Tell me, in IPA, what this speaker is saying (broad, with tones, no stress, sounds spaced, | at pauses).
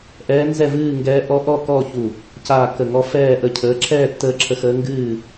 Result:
ʔ ɛː˧˥ n z ɛ˥˨ v ɨː˥˨ ŋ ɡ ɛː˧˥ ʔ ɔ˧˥ ʔ ɔ˥˨ k ɔː˥˨ ç u˧˩ | c aː˥˨ k ə˧˩ ŋ ɔ˧˥ f ɛː˥˨ ʔ ə˥˨ cʰ əː˧˥ ǁʰ ɛː˥˨ tː əː˧˥ ǁʰ ə˧˥ x əː˧˥ ŋ ɡ ɨː˥˨